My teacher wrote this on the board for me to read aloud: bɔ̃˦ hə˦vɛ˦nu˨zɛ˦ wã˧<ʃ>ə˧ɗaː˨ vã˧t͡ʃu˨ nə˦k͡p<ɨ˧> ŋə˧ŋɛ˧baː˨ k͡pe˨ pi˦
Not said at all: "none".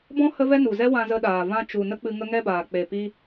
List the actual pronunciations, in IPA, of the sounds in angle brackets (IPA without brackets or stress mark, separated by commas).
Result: z, ɨ˧